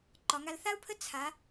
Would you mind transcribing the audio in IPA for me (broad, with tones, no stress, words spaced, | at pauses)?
ǃɒ˧˥ŋa˥l θa˥u̯pʰə˥ t͡sʰa˧˥